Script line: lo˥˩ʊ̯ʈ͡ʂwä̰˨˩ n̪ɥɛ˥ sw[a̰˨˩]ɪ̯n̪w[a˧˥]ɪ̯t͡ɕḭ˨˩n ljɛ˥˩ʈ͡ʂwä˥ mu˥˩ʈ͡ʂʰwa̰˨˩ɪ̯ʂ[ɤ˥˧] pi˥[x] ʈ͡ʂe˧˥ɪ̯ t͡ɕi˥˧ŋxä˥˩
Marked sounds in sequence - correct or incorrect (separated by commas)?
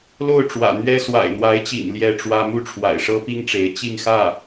correct, correct, incorrect, incorrect